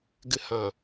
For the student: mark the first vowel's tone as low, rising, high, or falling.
high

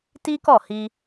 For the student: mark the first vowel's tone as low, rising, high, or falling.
high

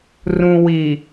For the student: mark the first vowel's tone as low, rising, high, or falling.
low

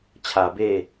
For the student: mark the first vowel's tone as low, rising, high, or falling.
low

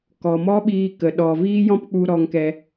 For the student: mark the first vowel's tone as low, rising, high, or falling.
low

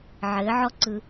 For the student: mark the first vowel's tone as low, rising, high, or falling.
rising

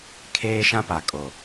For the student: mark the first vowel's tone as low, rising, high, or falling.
high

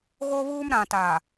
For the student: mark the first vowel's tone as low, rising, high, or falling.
high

